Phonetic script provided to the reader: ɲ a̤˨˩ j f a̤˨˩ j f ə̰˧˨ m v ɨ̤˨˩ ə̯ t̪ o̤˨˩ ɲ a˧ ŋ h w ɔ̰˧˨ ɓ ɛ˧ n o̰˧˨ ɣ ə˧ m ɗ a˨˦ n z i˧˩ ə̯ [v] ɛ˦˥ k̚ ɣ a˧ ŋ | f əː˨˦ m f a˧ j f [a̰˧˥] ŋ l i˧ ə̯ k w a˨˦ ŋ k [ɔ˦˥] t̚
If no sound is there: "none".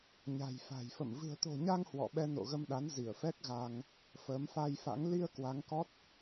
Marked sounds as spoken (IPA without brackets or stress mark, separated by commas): f, a̰˧˥, ɔ˦˥